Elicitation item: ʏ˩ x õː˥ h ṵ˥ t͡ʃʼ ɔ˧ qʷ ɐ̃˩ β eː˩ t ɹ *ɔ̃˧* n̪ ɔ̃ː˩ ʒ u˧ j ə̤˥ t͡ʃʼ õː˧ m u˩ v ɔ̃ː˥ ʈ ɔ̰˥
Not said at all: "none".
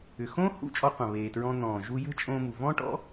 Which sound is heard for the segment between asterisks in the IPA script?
ɔ̃˧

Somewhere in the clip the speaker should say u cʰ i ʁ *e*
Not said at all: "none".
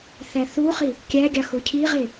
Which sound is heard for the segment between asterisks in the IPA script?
e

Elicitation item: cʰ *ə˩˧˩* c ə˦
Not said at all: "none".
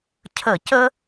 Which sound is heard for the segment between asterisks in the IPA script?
ə˧˩˧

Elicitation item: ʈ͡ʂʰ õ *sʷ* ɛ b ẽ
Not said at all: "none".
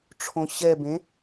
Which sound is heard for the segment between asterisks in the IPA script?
ɕ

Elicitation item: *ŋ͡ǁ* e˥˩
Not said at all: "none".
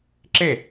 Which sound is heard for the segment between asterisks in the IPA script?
ǁ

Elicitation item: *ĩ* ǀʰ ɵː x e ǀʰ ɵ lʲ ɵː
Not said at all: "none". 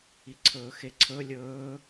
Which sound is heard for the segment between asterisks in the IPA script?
i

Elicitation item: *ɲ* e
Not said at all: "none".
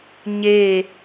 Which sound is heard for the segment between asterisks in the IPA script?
ɲ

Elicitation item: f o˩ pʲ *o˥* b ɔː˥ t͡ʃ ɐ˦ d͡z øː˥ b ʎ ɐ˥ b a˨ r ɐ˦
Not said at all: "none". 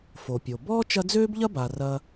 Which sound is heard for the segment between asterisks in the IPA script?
o˩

